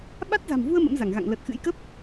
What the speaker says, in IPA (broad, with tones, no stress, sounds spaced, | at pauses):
ɓ a˦˥ t̚ z a̤˨˩ m v u˧ ə̯ m ə̰˧˥ m z a˧˩ ŋ ɣ a̰˧˨ ŋ l ə˨˩ t̚ x ɨ̰˧˥ j k ə˦˥ p̚